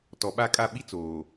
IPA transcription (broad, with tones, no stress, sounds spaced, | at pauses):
t ɔ˨ ɓ a˦˨ kʼ a˦˨ ɓ i˦ t͡s oː˨